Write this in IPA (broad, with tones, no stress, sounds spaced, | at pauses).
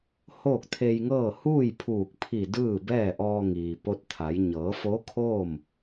h oː˥˨ k̚ t̪ʰ e˧ j ŋ ɤː˥˨ h uː˥˨ j pʰ uː˧˩ k̚ pʰ i˧˩ d ɯː˥˨ b ɛː˥˨ ʔ ɔː˧ ŋ iː˩ p o˧˥ t̚ t̪ʰ a˩˧ j ɲ ɤː˩˧ f o˧˥ kʰ oː˥˨ m